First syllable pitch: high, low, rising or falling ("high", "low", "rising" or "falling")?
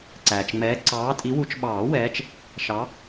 low